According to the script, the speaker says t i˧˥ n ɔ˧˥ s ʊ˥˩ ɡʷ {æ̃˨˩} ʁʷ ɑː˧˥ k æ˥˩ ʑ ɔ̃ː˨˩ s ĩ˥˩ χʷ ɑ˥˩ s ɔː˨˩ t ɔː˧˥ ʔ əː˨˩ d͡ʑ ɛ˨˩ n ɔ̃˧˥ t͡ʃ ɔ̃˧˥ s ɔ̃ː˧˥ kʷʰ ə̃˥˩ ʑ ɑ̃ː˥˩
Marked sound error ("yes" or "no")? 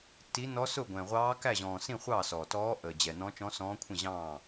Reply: yes